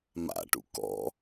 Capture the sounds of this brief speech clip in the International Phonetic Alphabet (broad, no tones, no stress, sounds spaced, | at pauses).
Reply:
m a̰ ʈ ṵ k ɔ̰